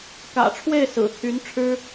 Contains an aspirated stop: yes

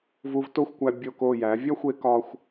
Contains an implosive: no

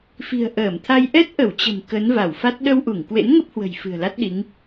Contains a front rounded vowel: no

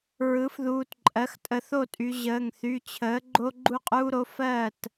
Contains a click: yes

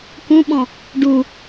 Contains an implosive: yes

